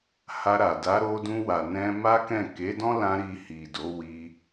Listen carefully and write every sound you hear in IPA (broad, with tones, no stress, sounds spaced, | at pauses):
h a˧ ɾ a˨ d a˨˦ ɾ o˧ d ũ˧ w a˨ n ɛ̃˧ m a˦ k ɛ̃˦˨ k e˨˦ d ɔ̃˦ l ã˧ ɾ i˧ h i˨ d o˨˦ w i˧